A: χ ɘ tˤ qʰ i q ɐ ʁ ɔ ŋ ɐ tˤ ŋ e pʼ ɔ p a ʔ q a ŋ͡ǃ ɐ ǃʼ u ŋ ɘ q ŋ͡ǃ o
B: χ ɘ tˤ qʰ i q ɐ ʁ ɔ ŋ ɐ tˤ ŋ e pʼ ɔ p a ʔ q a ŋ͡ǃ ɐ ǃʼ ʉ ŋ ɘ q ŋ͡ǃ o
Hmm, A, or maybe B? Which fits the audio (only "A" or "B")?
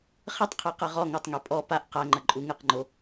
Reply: A